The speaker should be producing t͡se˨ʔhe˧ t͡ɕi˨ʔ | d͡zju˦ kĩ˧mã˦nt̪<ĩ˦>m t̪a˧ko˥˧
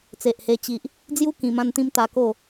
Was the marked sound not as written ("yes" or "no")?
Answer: no